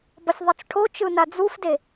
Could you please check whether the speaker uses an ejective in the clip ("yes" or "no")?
no